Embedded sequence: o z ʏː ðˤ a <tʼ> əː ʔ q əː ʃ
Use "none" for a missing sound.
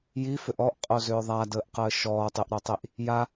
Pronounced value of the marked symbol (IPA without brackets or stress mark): d